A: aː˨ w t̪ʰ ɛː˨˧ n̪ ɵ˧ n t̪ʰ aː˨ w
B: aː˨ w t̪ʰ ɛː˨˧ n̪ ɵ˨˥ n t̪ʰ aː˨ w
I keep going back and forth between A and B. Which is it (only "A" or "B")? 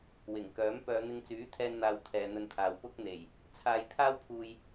A